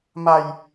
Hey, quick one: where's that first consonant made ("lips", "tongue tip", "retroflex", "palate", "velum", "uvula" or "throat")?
lips